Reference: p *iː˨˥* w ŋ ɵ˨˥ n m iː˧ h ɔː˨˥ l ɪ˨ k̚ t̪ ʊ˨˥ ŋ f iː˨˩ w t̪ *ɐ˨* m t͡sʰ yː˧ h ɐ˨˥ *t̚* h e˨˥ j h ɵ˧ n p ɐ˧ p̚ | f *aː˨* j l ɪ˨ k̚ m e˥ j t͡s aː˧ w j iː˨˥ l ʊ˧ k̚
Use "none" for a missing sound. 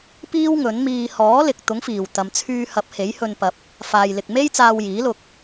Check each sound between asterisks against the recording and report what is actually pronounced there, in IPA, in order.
iː˥, ɐ˨, p̚, aː˨

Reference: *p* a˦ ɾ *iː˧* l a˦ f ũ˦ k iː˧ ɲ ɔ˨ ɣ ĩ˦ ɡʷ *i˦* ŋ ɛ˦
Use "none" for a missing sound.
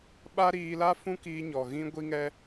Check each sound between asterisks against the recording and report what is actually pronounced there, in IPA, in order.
ɓ, iː˧, i˦

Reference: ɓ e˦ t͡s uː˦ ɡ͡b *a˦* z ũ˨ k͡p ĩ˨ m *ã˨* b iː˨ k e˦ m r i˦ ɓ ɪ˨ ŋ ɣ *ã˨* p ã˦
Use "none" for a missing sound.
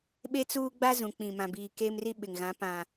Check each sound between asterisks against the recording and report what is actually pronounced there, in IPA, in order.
a˦, ã˨, ã˨˦

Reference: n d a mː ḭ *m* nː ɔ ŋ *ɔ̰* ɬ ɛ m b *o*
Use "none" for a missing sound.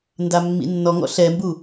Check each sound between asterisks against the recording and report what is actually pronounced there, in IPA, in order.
none, ɔ̰, u

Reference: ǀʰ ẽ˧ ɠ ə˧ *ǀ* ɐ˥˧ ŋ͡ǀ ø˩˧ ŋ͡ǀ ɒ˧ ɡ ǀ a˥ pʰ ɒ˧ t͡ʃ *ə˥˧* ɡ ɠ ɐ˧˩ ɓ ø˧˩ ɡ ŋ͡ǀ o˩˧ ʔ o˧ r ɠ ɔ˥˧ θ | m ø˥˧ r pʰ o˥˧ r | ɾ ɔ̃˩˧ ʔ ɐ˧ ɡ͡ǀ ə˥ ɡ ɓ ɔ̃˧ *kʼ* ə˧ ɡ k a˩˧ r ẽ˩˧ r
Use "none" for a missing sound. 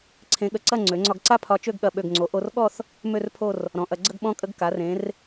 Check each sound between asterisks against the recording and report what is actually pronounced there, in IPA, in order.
ǀ, ø˥˧, kʼ

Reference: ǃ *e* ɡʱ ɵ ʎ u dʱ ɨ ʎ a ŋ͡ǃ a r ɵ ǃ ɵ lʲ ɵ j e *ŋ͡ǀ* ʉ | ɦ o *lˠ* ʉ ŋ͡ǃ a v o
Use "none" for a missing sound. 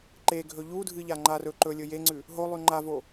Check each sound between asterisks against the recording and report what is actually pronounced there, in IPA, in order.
e, ŋ͡ǀ, lˠ

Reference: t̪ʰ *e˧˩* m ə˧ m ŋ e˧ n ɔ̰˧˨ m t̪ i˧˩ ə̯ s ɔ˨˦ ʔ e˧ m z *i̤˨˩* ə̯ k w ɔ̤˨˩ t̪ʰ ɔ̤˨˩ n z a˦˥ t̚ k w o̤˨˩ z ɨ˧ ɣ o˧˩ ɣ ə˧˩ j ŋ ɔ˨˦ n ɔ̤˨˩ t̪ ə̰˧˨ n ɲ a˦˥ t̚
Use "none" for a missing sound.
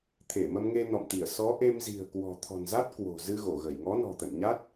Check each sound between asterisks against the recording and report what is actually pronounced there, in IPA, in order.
e˧˩, i̤˨˩

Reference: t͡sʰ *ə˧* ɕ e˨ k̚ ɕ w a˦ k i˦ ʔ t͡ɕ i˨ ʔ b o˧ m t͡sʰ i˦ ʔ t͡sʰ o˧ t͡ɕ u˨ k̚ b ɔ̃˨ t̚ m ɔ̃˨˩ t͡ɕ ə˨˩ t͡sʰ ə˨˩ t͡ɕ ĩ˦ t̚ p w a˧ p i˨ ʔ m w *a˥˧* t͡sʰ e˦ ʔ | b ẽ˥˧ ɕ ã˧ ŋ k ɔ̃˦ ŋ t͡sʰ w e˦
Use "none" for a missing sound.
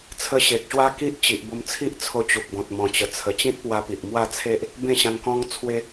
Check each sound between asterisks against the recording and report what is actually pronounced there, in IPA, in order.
ə˧, a˥˧

